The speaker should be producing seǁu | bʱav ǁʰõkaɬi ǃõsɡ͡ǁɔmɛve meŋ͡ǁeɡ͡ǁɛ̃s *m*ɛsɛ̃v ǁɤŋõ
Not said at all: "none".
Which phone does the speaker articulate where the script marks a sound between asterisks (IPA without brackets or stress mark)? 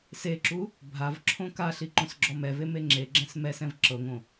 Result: m